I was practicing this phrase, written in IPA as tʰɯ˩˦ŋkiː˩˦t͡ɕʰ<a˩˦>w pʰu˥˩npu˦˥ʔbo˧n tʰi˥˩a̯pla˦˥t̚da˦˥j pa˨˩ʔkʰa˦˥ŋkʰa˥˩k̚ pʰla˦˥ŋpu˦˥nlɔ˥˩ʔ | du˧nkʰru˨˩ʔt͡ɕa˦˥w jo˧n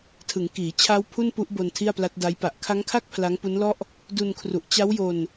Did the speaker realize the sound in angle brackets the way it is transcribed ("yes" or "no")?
no